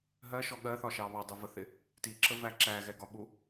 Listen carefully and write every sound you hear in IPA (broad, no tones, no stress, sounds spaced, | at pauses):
ɦ ɜ ʃ ɔ ɠ ɜ θ ɒ ʃ ɑ β ɑ dˤ ʊ v ə θ ɪ | t i ǁ ə v æ ǁ æ ɣ ɛ ɡ ɒ ɓ u